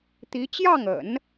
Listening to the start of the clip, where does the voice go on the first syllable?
rising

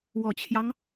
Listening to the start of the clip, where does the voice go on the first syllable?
low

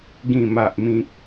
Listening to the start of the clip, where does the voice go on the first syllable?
low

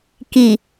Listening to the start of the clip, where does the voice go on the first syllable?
low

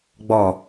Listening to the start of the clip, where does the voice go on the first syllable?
low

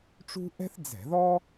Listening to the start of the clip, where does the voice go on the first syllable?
high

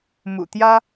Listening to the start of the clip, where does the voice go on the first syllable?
low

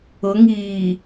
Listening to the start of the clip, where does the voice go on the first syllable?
rising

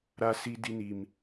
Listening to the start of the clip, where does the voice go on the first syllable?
high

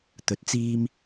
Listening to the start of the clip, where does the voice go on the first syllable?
rising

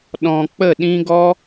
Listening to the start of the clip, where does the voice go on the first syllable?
low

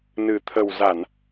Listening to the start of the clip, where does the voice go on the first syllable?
low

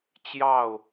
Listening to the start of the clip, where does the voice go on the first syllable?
falling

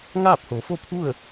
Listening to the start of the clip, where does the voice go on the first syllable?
falling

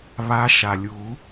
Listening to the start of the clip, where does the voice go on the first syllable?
rising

